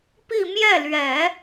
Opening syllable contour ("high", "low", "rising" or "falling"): falling